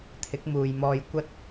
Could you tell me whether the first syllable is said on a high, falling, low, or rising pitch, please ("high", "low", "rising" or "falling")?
rising